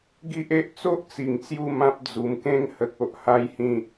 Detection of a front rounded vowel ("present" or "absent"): absent